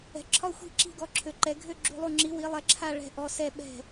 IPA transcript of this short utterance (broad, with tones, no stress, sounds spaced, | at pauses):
ɛ̤˩˧ ǁʰ ɒ˥˩ xʷ i̤˥˩ ǁ i̤˥˩ ɡ ɔ˧˩ ǁʰ ø˩˧ ǃ ɛ˩˧ ɡʱ ø˥˩ ɡ͡ǁ ṳ˧˩ lˠ u˧˩ ŋ͡ǁ i˩˧ w i˩˧ lˠ ɛ˩˧ ǁʰ a˧˩ ɭ ɛ̤˧˩ ʔ ɔ˩˧ s ɛ˧˩ ɓ ɛ̤˧˩